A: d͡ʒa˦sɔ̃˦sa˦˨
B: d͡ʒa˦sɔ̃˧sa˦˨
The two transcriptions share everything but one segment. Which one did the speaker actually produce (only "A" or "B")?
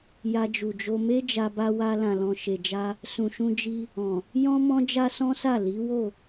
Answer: A